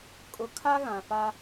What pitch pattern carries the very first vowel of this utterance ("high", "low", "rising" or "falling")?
low